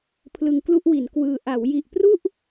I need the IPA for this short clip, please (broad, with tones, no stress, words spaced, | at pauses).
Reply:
pʰlɯ˧ŋ klu˥˩ʔwi˩˦n kwɯː˧ ʔa˩˦wji˨˩ʔ pru˥˩ʔ